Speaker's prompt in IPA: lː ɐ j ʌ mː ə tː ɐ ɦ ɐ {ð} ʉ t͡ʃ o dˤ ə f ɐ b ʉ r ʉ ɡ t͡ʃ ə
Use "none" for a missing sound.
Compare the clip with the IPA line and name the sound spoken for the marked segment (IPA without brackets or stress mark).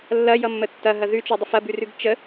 ð